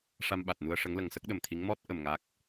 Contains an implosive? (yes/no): yes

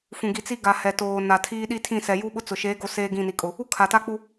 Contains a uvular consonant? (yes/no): no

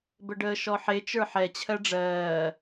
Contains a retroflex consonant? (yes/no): yes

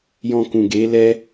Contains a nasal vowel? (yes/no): yes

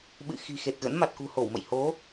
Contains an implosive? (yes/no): yes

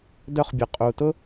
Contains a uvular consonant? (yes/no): yes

